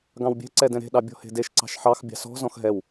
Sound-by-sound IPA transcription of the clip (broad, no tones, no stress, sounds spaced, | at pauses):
ɡ ɑ̃ w bʲ ɛ̤ ǀ ɛ d ɛ̃ ɾ e̤ ɗ ɑ bʲ ɔ̤ h e̤ d e ʃ ǀ ɑ̤ ʃ ħ ɑ x bʲ ɑ̤ s ɔ̤ z ɔ̃ x ɦ ɛ w